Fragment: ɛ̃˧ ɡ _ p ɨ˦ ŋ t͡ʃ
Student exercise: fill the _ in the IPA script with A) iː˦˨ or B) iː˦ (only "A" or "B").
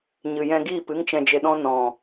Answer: A